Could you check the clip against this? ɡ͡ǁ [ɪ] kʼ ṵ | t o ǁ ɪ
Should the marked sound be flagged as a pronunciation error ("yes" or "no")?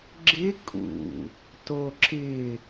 no